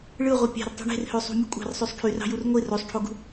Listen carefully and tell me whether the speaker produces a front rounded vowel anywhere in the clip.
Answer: yes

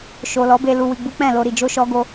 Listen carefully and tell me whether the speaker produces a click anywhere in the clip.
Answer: no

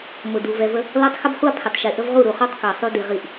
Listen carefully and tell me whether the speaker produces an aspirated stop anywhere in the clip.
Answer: yes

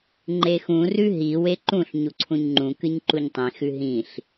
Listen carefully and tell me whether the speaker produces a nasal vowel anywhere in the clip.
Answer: yes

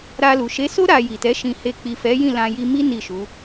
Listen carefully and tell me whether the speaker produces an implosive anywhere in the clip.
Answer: no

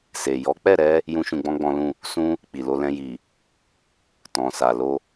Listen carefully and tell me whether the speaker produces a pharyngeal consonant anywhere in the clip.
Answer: no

